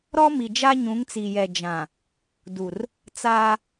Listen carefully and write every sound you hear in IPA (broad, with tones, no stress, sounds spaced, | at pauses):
ɾ ɔ˦ m i˨ d͡ʒ a˦ ɲ ũ˨˦ ŋ t͡s i˨ j ɛ˨ d͡ʒ ã˨ | d u˨ r | t͡s aː˦